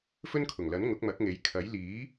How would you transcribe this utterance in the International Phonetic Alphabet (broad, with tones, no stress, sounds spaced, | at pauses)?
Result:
f ɵ˥ n kʰ ʊ˨˩ ŋ l ɐ˨˥ n ŋ ʊ˨˥ k̚ m ɐ˨˥ k̚ ŋ e˨˥ j kʰ ɐ˨˥ j l iː˨˥